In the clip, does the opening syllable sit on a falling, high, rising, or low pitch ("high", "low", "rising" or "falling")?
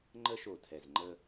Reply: high